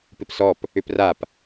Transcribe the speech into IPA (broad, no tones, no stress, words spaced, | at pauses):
pɪpsɔp | ʏprap